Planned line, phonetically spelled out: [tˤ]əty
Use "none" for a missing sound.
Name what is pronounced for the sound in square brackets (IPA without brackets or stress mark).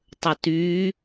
tˤ